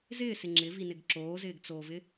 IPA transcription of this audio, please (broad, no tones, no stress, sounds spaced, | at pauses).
z ɪː s ɪ ŋ͡ǁ ɪ v i n ɪ ɡ ǁ oː z ɪː ɡ t͡s oː v ɪ